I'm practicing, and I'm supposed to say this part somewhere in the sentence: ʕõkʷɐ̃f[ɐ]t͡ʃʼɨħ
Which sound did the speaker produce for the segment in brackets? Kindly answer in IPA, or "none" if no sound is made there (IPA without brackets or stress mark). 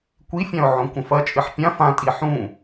ɐ